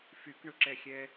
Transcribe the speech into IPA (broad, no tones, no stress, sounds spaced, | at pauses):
f y k ɳ ʊ ǁ ɛ xʲ ɛ